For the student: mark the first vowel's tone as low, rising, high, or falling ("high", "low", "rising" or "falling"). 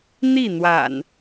falling